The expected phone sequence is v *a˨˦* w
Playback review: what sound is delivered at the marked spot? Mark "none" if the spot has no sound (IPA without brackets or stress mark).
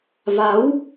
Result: a˨˦